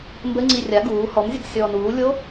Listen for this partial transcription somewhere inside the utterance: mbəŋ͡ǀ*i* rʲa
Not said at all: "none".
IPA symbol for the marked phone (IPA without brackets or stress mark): i